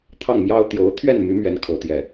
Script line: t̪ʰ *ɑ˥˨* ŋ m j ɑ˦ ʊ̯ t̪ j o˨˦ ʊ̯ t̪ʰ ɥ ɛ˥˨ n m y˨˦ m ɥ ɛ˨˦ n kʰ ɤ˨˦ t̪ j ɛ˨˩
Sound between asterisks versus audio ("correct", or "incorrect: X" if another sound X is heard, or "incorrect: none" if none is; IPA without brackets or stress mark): correct